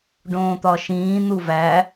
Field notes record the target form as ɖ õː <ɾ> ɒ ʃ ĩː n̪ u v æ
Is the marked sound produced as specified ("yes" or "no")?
no